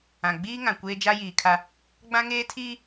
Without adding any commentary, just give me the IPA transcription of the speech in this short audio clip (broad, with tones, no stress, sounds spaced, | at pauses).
ã˨ ɡ͡b iː˦ ŋ ã˨ kʷ eː˦ d͡ʒ a˦ j iː˨ kʰ a˦ | ɡ͡b ã˦ ŋ eː˦ tʰ iː˦